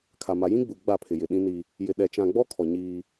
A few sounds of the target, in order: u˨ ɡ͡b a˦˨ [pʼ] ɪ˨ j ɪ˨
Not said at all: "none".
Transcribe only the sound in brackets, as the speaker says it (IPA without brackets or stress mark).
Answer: pʰ